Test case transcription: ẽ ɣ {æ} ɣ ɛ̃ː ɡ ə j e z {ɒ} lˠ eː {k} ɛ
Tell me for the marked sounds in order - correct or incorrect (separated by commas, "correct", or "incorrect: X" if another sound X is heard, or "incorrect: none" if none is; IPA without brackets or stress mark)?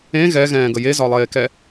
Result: incorrect: ɛ, correct, correct